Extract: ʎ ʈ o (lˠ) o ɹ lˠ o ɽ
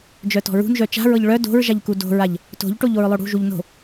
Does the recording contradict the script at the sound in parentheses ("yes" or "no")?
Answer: yes